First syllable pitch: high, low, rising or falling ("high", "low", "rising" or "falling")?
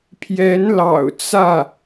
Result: rising